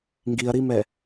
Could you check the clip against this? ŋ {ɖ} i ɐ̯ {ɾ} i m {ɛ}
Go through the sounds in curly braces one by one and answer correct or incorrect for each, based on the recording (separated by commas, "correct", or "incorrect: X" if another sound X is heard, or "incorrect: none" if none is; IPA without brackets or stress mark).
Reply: incorrect: ɡ, correct, correct